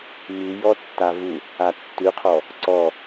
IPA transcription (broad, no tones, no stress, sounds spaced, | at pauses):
m ʉ j ɔ tː a v u | a tː ʉ qʰ ɔ | ǀ ɔ